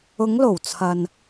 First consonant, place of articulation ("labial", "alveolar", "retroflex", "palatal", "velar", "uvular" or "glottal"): velar